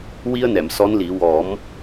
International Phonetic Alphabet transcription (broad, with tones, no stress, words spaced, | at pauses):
wi˧ə̯nɛ˨˩˨m sɔ˧˥nli˨˩˦ wɔ˨˩˦m